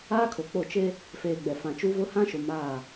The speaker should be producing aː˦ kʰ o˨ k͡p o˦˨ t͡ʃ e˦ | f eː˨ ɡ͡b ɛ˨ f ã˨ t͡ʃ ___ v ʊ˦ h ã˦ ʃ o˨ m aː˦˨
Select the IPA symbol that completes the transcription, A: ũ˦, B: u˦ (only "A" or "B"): B